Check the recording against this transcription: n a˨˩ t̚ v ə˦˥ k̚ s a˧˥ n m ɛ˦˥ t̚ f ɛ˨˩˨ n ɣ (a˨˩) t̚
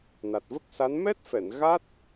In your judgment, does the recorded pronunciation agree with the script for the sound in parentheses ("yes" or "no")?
no